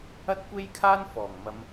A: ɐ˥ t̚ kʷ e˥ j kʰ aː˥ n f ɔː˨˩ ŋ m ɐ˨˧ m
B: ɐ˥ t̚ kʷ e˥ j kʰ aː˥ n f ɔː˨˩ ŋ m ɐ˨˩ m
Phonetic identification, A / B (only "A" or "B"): A